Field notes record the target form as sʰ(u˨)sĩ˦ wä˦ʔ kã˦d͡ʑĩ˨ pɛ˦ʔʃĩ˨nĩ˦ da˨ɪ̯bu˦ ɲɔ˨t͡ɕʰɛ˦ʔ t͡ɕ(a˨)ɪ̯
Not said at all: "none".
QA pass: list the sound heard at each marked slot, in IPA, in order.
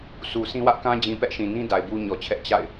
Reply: u˨, a̰˦˨

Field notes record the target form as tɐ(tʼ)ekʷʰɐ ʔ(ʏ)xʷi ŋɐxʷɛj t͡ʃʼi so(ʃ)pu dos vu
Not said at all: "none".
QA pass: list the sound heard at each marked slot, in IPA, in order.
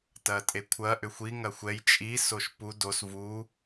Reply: tʼ, ʏ, ʃ

